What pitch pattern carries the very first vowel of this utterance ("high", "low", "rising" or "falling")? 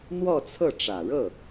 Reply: falling